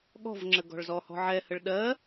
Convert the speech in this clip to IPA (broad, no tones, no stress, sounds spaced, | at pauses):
ɠ ɔ̤ v ŋ͡ǁ ə ɡ ɔ̤ ɭ z ɔ h ɔ̤ ʕ ɛ h ə ɭ ɗ ɜ